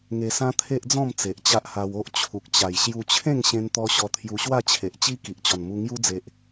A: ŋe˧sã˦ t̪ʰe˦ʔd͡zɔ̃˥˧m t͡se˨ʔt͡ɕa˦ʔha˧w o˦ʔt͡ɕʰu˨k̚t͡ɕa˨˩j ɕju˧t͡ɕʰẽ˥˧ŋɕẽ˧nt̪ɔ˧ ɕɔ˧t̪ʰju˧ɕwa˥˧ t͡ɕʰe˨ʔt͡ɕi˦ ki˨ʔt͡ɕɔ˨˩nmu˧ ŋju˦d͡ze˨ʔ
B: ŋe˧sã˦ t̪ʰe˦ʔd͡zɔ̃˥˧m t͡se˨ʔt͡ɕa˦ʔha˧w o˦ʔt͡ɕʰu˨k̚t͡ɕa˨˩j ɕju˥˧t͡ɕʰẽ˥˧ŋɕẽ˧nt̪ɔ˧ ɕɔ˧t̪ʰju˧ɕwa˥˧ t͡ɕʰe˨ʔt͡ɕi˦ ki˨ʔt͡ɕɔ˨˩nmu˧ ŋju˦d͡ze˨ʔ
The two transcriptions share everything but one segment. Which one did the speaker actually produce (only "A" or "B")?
A